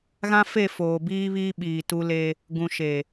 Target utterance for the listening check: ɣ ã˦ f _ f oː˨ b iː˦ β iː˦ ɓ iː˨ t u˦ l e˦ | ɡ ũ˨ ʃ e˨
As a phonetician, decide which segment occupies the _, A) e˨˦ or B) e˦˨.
B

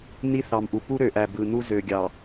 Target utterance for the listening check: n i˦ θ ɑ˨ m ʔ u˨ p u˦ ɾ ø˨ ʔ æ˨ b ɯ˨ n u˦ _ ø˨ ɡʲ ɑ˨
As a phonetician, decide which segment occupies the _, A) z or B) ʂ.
A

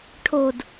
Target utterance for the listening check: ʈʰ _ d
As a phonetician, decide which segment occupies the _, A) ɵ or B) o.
B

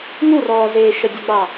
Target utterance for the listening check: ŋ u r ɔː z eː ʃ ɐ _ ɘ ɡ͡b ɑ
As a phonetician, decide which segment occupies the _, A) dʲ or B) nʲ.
A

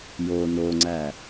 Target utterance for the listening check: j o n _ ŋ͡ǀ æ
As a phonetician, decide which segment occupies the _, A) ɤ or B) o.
B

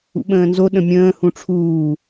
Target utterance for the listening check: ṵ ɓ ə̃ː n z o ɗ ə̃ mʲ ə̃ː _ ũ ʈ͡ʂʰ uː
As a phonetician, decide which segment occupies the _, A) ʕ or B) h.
B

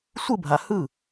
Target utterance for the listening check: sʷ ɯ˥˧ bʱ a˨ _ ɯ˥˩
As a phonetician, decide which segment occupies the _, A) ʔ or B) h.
B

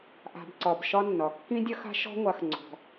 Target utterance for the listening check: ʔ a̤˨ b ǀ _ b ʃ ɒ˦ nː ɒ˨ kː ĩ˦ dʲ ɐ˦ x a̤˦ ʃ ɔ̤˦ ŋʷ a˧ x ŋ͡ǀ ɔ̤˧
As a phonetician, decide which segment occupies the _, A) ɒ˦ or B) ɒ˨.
B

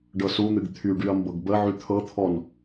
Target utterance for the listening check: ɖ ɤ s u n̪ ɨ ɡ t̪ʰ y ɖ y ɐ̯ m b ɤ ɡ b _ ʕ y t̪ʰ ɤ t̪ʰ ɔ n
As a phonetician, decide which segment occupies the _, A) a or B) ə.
B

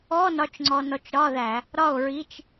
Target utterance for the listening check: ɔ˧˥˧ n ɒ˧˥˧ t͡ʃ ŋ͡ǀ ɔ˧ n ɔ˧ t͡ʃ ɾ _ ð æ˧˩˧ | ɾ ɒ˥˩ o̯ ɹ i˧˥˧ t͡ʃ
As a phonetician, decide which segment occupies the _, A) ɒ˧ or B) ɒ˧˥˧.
B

